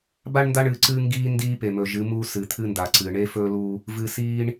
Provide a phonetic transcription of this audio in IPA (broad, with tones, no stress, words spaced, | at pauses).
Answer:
ba˦ɳ nda˦ɳɨː˨ǀɨː˦ŋɡiː˦ ndiː˦pe˨mɵ˨ ʒɨ˨˦mu˦ sɨ˨ t̪ʰɨː˦nda˨ǀɨː˨ ɳe˦fɵ˦lu˦ | vɨː˨siː˦ɳ